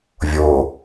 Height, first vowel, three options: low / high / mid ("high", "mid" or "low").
mid